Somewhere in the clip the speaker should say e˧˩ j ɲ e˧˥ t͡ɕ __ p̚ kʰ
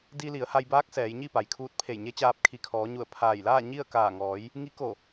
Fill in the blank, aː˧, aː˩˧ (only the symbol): aː˧